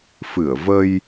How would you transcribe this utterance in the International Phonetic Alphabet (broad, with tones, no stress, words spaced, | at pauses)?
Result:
fɨ˧˩ə̯və˧j